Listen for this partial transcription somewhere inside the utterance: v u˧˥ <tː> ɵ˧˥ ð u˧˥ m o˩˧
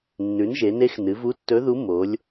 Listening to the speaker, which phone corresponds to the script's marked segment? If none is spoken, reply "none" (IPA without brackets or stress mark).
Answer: tː